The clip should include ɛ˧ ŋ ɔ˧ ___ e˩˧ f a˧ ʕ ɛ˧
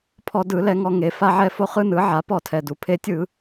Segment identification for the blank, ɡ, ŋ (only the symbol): ŋ